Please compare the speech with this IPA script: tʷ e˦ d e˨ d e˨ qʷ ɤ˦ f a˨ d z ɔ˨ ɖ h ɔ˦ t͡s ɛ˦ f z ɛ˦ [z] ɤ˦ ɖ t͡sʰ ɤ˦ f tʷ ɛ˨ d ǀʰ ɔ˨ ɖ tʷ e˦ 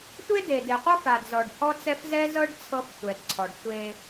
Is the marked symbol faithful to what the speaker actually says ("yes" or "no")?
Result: yes